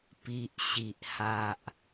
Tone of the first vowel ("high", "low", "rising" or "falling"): low